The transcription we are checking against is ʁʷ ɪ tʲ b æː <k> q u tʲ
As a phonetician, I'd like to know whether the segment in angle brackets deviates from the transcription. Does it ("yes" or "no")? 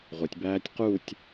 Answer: yes